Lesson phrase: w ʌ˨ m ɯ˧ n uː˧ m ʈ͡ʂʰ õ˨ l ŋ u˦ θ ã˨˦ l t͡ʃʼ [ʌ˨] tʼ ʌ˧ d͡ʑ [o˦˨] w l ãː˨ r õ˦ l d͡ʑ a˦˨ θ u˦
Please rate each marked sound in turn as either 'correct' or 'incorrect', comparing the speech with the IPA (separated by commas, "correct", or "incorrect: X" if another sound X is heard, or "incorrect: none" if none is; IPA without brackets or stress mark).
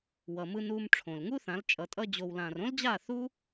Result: correct, incorrect: o˨